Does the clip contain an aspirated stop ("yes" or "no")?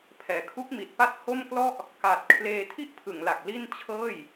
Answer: yes